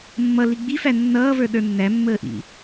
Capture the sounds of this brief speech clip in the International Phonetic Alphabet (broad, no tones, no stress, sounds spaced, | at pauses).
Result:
mː ʌ l i ɡ͡b i f æ nː ʌː v ə˞ ɗ ə˞ nː æ mː əː ʔ ḭ